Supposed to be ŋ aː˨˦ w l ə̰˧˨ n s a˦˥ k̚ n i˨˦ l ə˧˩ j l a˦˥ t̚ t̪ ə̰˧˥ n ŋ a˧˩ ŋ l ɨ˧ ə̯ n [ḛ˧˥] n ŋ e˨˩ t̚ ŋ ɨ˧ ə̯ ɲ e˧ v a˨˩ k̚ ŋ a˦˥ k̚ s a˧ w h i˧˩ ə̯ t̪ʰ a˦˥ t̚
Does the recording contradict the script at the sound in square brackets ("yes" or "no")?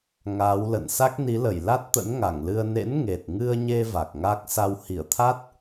no